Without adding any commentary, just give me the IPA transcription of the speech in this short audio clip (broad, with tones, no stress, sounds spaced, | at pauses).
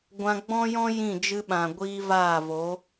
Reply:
ɡʷ ã˧ ɡ͡b ɔ̃˦ j ɔ̃˦ j ĩ˦˨ d͡ʒ ɨ˧ ɓ ã˨ ɡʷ iː˧ v aː˦˨ v o˨˦